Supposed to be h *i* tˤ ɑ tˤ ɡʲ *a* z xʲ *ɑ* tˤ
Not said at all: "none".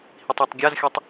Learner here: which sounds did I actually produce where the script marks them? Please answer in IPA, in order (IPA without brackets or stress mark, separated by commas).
i, a, ɔ